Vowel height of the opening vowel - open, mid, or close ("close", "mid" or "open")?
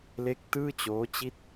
mid